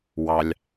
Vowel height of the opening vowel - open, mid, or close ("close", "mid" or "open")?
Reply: open